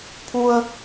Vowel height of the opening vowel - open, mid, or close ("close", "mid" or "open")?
close